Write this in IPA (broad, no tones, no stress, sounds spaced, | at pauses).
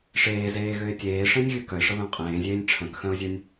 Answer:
ʂ eː z eː ɣ ø ɪ̯ tʲ eː ʂ ẽ nʲ ɣ y k œ ɪ̯ ʂ ə β œ̃ qʼ ẽː zʲ eː nʲ ʈ͡ʂʰ œ̃ k x œ̃ ʊ̯ zʲ ø nʲ